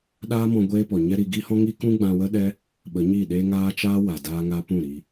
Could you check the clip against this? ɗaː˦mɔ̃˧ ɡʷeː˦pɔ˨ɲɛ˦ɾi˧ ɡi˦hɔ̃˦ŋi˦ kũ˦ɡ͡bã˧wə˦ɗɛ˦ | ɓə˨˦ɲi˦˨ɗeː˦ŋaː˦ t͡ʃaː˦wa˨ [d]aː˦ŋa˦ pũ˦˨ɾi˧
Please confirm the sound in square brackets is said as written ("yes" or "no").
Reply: yes